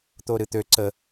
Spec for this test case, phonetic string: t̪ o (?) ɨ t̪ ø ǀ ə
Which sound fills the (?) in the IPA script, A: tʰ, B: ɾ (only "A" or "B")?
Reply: B